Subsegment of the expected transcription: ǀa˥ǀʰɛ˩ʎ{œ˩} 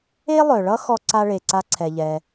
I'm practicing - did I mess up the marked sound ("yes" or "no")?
yes